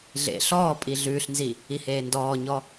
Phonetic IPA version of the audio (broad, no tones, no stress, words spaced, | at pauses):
ɮḛ ɬɔːpʼi ɮʉːɬnzi | iheːndɔːɲɔ